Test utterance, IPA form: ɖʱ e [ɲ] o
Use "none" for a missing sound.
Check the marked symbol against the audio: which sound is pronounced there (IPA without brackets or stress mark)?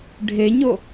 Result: ɲ